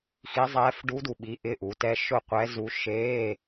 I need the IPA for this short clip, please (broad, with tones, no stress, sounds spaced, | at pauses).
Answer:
x i˧˥ zˤ ɛː˧˥ f ɖ u˧˥ d u˨˩ ɓ i˩˥ ʔ ɪ˧˥˧ ʔ u˩˥ t ɛ˧˥˧ ʃ ʊ˥˩ qʷ ɛ˧˥ z u˧˥ ʃ e˧˥˧